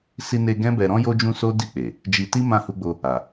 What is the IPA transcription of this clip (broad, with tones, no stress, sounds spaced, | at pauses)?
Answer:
s i˧ n e˧ ɡ ɛ̃˦ b ɛ˧ ɾ ɔ̃˦ j o˧ d͡ʒ ũ˧ s o˦ d i˦˨ k͡p e˨ | d͡ʒ i˧ t i˦ m ã˦˨ h u˧ ɡ͡b o˧ | a˨